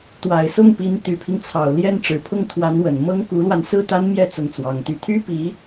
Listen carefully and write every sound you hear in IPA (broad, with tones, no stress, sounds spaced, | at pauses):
t̪ w a˨˩ ɪ̯ s ʊ˥˩ ŋ p i˧˥ n t̪ y˨˩ pʰ i˦ ŋ t͡sʰ ɑ˨˩ ʊ̯ l j ɛ˥˩ n ʈ͡ʂ ɻ̩˨˩ pʰ ʊ˥˩ ŋ t̪ʰ w a˧˥ n w ə˨˩ n m ɤ˥ ŋ k u˧˥ l w a˧ n s ɹ̩˥˩ t̪ a˥ n m j ɛ˥˧ t͡s ʊ˥˩ ŋ t͡s w ɑ˧˥ ŋ t̪ y˥˩ t̪ʰ y˥ p i˧˥